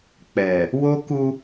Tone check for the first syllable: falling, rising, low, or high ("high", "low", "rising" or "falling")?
low